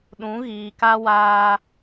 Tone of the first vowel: rising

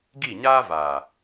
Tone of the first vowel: falling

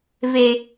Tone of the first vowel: low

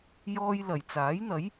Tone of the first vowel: high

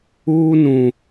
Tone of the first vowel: high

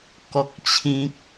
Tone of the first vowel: high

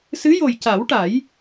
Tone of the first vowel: rising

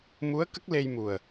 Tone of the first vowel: rising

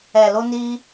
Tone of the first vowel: low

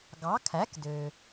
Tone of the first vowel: rising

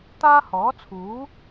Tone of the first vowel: high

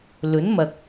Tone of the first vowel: rising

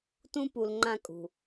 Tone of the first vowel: high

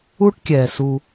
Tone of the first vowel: high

